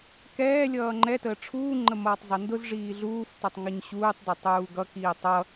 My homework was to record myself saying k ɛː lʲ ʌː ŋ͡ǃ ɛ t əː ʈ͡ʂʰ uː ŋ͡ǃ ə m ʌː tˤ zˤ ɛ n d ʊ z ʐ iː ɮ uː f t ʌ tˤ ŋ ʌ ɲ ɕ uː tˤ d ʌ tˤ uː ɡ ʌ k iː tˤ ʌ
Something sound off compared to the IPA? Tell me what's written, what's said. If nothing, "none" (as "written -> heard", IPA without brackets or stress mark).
none